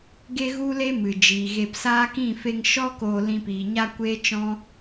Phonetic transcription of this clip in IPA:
ɡ e˦ ɣ u˦ l e˦ m ɨ˨ d͡ʒ iː˨ ɣ e˧ p s aː˦ k ĩ˦˨ f e˧ ŋ ʃ ɔ˦ k oː˧ l ĩ˧ p iː˨ ɲ a˦ kʷ eː˦ t͡ʃ ɔ̃˦

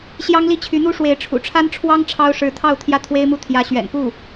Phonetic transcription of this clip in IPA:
ɕ j ɑ˥ ŋ l i˥˩ t͡ɕʰ y˧˥ n̪ u˥ ʂ w e˧˥ ɪ̯ ʈ͡ʂʰ ṵ˨˩ ʈ͡ʂʰ a˥ n ʈ͡ʂʰ w ɑ˥ ŋ ʈ͡ʂʰ ɑ˥ ʊ̯ ʂ ɻ̩˧˥ t̪ʰ ɑ˥˧ ʊ̯ t̪ʰ j ä˥˩ t̪ʰ w e˥ ɪ̯ m u˥˩ t̪ʰ j ä˧˥ ɕ ɥ ɛ̰˨˩ n p u˥˩

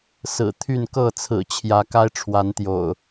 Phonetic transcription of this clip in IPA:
s ɹ̩˨˩ t̪ʰ y˥˨ n k ɤ˥˨ t͡sʰ ɹ̩˨˩ t͡ɕʰ j ä˨˦ k a˦ ɪ̯ ʈ͡ʂʰ w a˨˦ n t̪ j o̰˨˩ ʊ̯

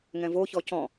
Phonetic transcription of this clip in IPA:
ŋ ɛ̃ v o ç ɔ c ɔ̃

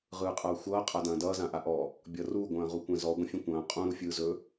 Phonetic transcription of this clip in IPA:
ʁ ɯː qʼ ʌː xʷ ʌː qʼ a d ɐ̃ː d ʌː z ã ʔ a ʔ ɔ | bʲ ʌ r u ɡʷ ɐ̃ː ʁ u kʷ ɛ̃ z ɔ ɡʷ ɐ̃ fʲ ɛ̃ kʷ ɐ̃ː qʼ ũ ɾ u fʲ ɯː z ɵ

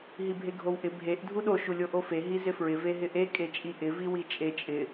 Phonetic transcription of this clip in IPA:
ɦ i bʱ e ɡʱ o w ʔ ɪ bʱ e ʔ dʱ u ɗ o ʃ u lʲ o ʔ o f e ɦ i z ɪ f ɹ ɪ v e ɦ ɪ ʔ e kʼ e t͡ʃʼ i ʔ ɪ v i w i t͡ʃʼ e t͡ʃʼ ɪ

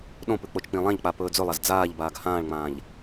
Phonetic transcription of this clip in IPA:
ɗ õ p ʉ k͡p o t͡ʃ k͡p ĩ lˠ ã ʎ k͡p a p ɵː d͡z ɵ lˠ a z d͡z aː ʎ b aː ɡ h ãː ɭ ŋ͡m ãː ʎ

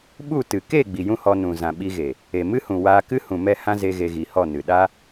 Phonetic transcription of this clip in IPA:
ɓ u˦˨ t ɨ˨ k e˦˨ ɡ͡b i˨ j ũ˦ h ɔ˧ n ũ˨ z ã˨ ɓ i˧ ɣ e˨ | e˨ m ɨ˦ h ũ˨ w aː˧ k ɨ˦ h ũ˨ m ɛ˦˨ h ã˦ z e˧ ɣ e˧ ɣ i˨ h ɔ˦˨ n ɨ˨ ɗ a˦

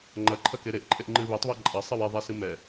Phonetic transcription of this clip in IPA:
ŋ͡ǃ ɐ ǃʰ ɐ k e ɾ e ʔ ǃʼ e ʔ ŋ͡ǃ ɨ β e tˤ β a ǃʼ ɐ sˤ ɨ w e ðˤ ɛ s ɨ m ɛ

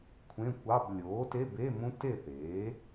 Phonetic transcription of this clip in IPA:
kʷʰ ẽ˧˥˧ kʷ ɑ˧˥˧ b lʲ oː˩˥ t e˧˥˧ b e˧˥˧ m ũ˦˥ t e˥˨ θ eː˩˥

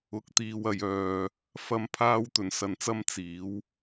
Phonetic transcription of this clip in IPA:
ʊ˧ k̚ t̪ iː˧ w ɐ˨ j œː˨ | f ɐ˥ m pʰ aː˥ w t̪ ɵ˧ n s ɐ˧ n t͡s ɐ˥ m t͡s iː˨˥ w

